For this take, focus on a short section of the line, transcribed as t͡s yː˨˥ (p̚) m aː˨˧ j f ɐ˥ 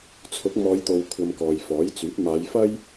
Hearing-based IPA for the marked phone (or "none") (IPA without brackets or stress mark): p̚